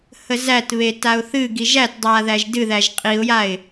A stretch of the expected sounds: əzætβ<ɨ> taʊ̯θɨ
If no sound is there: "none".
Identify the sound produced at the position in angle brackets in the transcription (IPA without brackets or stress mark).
e